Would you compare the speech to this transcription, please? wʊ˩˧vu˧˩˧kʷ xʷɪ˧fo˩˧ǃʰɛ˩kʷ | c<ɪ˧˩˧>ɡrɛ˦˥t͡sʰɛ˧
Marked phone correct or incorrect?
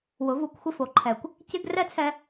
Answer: incorrect